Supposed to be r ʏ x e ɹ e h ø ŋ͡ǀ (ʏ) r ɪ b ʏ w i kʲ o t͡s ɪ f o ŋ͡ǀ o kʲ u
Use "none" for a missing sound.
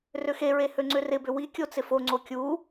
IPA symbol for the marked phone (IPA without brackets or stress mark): ʏ